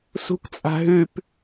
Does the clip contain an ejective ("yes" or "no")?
yes